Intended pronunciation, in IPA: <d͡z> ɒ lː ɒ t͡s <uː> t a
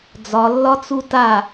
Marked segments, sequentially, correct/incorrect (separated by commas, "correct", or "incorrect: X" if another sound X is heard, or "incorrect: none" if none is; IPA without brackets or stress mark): correct, incorrect: u